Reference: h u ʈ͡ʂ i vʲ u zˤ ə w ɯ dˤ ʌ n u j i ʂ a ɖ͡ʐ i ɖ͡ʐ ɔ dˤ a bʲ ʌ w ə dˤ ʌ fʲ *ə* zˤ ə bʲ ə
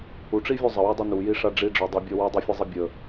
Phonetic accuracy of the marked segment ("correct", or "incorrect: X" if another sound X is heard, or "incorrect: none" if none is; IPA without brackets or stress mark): incorrect: ɯ